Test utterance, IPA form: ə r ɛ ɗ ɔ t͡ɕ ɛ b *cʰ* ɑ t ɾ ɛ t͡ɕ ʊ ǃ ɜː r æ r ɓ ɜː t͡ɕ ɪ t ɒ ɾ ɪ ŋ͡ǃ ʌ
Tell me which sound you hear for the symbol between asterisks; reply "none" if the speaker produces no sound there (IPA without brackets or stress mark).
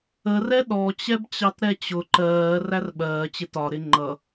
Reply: t͡ɕ